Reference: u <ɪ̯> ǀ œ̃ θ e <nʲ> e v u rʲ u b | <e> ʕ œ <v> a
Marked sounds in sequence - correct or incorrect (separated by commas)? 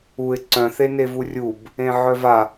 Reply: correct, incorrect, incorrect, correct